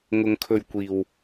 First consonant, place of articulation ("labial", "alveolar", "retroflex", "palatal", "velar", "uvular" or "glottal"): velar